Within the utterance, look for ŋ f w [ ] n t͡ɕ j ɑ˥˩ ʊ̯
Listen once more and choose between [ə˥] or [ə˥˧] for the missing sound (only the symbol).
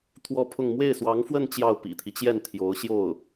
ə˥˧